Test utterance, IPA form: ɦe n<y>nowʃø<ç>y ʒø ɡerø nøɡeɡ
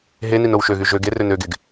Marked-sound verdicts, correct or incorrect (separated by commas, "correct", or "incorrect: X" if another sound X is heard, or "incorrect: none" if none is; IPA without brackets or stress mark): incorrect: i, incorrect: ɣ